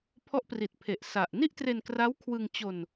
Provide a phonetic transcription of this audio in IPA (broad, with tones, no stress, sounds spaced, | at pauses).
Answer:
pʰ ɔ˦˥ ʔ p r i˨˩ t̚ pʰ e˨˩ ʔ s a˨˩ ʔ n i˥˩ ʔ t r e˧ n k r a˦˥ w kʰ w ɯ˧ ŋ t͡ɕ o˧ n